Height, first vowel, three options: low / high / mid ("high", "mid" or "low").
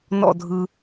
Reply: mid